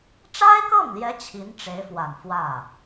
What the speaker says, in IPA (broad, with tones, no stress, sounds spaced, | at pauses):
ʈ͡ʂ a˥ ɪ̯ k ɤ˥˩ ŋ l j ɛ˧˥ t͡ɕʰ i˧˥ n ʈ͡ʂ e˧˥ ɪ̯ f w a˨˩ n f w ä˥˩